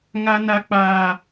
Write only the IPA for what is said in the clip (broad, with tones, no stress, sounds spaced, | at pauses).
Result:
ŋ a˦ n a˦ k͡p aː˦